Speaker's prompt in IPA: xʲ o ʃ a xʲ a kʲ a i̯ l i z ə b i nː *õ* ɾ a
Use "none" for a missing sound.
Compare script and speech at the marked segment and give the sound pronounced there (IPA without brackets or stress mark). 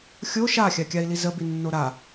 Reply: o